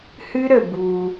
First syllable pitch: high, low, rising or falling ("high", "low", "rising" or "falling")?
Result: high